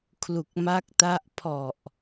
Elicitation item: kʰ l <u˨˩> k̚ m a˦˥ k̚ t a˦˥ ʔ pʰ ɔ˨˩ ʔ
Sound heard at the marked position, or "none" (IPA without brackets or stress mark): u˨˩